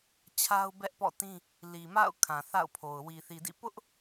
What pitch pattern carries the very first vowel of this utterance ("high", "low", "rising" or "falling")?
high